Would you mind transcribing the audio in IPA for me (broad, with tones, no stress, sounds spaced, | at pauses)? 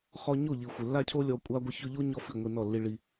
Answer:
χ ɔ˧ ɲ o˦˨ ʎ i˨ xʷ ɪ˨ lː a˦ cʰ o˦ lʲ ɔ˧ kʷʼ a˦ ɡʷ ɪ˦ ç ʊ˦ ʎ o˦ ɲ ɔ˦ f i˦˨ ŋʷ i˧ n ɔ˦˨ lː i˧ ɭ i˧